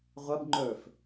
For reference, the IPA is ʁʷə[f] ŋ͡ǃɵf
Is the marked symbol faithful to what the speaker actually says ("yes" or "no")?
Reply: no